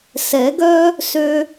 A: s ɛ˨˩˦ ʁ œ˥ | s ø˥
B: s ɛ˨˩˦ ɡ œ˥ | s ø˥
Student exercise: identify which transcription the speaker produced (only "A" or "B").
B